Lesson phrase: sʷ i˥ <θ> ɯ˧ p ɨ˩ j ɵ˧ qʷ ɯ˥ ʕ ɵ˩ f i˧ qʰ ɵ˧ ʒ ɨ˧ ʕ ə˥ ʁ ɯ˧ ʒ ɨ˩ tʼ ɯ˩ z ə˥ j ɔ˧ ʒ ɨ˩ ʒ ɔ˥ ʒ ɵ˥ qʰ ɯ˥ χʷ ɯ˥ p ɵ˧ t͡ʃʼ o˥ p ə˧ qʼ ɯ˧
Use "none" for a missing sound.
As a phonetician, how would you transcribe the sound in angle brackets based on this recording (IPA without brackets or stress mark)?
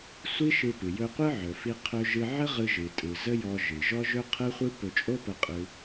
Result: ʃ